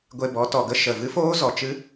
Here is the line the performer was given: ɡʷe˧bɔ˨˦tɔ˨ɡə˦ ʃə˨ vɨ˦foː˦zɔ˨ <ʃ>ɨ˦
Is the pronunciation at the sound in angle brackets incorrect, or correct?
incorrect